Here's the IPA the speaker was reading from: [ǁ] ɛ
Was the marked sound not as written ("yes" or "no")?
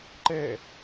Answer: yes